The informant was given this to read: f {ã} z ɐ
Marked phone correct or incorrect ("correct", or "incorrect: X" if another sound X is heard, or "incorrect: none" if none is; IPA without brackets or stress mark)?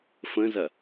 incorrect: ə̃